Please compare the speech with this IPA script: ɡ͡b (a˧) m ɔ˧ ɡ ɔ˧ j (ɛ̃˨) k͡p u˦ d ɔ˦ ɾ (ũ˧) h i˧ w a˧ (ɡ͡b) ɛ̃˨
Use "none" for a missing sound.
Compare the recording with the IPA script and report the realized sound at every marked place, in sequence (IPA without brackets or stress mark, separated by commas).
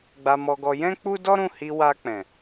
a˧, ɛ̃˦, ũ˦˨, k͡p